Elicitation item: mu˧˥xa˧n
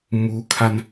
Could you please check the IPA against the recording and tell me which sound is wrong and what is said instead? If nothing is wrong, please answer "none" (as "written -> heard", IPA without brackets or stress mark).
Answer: x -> kʰ